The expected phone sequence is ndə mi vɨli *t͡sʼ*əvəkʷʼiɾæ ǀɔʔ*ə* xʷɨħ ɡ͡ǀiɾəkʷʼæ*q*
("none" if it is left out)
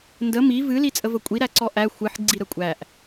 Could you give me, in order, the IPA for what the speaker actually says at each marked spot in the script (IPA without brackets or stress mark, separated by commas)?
t͡sʼ, æ, ʔ